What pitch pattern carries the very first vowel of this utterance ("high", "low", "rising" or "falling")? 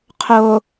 low